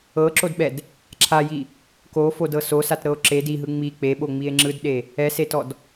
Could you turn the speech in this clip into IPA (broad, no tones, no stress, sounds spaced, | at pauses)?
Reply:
ɤ ǁ o d ɓ ɛ d | ǁʰ a j i | k o f o d ɤ s o s a t ɾ ɤ o̯ ǁ e d i ɦ ɯ ŋ͡m i k͡p e ɓ o ŋ͡m i e̯ ŋ͡ǁ ɯ d ɗ e | ɛ s e t ɔ d